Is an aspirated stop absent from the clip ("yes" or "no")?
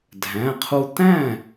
no